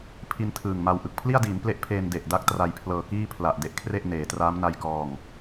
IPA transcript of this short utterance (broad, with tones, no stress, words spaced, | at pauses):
pʰi˧n tʰɯː˨˩ŋma˧w ʔɯ˨˩k̚pʰli˥˩a̯diː˩˦n ple˦˥ʔpʰeː˧n de˨˩ʔda˦˥k̚ tra˧jpʰlɤː˧ kiː˥˩pʰla˨˩ʔ de˦˥ʔkʰre˥˩ʔneː˩˦traː˦˥m na˧jkɔː˨˩ŋ